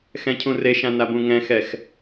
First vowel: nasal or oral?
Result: nasal